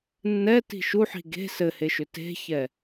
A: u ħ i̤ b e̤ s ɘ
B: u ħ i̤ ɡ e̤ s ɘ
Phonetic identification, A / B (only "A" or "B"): B